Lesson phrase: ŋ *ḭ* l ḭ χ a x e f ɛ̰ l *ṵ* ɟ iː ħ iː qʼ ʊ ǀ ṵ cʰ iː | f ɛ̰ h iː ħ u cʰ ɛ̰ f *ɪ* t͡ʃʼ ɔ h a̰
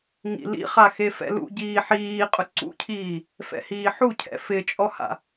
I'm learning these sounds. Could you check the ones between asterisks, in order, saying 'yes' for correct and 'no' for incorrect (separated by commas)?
yes, yes, yes